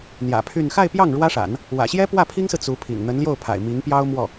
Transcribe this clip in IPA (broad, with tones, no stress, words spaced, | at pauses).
n̪jä̰˨˩pʰy˥˧n xa˥˧ɪ̯pjɑ˥˩ŋ ɻwä˥ʂa̰˨˩˦n | wä̰˨˩ɕjɛ˥ pwä˥˩pʰi˥ŋsɹ̩˨ t͡su˧˥pʰḭ˨˩ŋ n̪ə˧˥nljo˥˩ʊ̯pʰa̰˨˩ɪ̯ mi˧˥ŋpjɑ˥ʊ̯mwɔ˥˩